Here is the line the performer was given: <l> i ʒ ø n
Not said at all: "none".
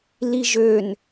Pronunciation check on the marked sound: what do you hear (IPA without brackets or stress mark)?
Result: l